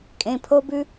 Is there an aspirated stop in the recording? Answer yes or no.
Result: yes